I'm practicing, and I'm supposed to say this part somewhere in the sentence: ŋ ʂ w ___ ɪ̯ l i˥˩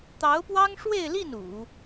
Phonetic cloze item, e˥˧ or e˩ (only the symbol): e˥˧